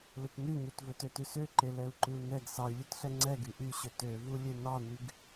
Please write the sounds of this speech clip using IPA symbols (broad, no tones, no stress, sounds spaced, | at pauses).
l ɵ t n ʉ ɲ u t v ɵ t ø t ʉ s ø ǃ e l ɛ u̯ ǃ ʉ u̯ n ɛ ɡ s ɑ y̯ lʲ ʉ t ɬ ɛ ŋ͡ǀ ɛ ɡ y ʔ y ɕ ɵ t ø v u lʲ e n ɑ n y ɡ